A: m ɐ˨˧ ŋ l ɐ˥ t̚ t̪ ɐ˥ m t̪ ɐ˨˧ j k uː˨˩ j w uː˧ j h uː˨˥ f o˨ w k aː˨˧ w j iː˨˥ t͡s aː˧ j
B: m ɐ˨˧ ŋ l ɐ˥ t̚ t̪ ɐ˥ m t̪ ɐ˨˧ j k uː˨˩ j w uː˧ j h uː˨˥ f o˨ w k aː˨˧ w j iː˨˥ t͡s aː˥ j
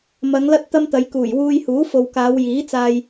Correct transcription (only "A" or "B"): A